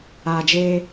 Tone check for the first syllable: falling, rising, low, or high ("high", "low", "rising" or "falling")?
low